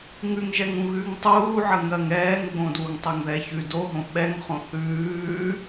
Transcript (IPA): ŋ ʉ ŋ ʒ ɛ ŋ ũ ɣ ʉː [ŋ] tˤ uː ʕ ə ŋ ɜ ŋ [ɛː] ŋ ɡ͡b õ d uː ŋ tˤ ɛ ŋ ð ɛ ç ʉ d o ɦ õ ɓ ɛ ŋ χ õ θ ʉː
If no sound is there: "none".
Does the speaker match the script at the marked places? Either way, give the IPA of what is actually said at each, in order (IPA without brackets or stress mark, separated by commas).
ŋ, ɛː